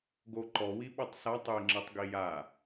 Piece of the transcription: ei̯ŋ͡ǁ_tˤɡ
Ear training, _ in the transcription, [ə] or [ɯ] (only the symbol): ɯ